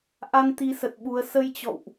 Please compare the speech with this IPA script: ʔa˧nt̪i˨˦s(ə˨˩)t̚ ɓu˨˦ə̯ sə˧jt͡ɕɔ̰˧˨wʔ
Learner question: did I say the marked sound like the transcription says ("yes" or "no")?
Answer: yes